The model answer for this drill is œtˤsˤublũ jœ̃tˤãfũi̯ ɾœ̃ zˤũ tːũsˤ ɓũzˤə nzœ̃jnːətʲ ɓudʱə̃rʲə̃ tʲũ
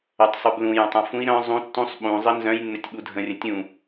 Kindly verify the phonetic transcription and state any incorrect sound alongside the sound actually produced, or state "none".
none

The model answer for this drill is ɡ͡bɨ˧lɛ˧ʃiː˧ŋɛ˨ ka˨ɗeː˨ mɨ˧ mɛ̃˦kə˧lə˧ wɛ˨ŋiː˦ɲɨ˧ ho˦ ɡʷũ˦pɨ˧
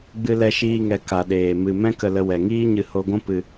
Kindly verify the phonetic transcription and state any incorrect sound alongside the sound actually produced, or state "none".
none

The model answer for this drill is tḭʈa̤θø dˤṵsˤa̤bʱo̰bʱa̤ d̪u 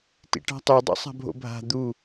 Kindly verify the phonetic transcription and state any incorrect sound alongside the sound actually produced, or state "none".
θ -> tˤ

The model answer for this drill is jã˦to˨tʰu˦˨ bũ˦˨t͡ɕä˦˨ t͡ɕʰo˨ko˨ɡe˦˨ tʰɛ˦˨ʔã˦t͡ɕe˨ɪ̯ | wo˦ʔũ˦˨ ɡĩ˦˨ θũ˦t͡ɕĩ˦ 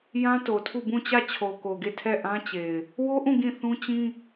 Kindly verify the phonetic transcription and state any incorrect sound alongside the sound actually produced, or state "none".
none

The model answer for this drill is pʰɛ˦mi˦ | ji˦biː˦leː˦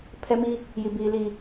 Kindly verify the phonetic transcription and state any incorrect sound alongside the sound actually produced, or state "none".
eː˦ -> iː˦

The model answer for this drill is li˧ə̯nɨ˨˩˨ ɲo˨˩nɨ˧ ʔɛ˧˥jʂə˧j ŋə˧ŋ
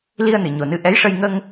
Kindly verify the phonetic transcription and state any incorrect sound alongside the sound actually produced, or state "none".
none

